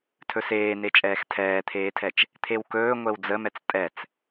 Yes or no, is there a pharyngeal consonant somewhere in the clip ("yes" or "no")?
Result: no